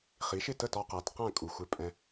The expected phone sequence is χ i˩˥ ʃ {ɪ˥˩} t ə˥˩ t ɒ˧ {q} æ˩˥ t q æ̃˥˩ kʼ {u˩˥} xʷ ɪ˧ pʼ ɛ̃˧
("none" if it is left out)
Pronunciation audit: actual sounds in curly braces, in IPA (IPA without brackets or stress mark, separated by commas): ɪ˥˩, q, u˩